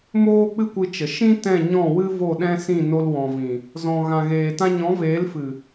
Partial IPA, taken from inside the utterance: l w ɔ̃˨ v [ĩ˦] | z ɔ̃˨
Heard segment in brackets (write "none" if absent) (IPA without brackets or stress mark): ĩ˨